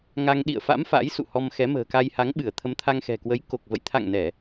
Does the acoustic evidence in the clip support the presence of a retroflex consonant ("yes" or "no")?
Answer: no